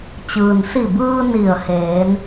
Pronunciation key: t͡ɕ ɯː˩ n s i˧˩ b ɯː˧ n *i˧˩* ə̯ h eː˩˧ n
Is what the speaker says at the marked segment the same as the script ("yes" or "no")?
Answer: yes